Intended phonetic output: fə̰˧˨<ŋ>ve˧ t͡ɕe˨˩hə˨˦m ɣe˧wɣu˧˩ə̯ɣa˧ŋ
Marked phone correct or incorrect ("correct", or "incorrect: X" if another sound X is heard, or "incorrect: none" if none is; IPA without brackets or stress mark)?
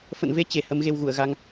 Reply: incorrect: n